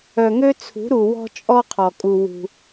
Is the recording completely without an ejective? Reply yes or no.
no